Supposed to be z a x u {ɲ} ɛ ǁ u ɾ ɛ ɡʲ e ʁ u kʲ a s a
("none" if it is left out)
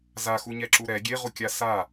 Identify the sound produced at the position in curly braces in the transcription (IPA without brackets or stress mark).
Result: ɲ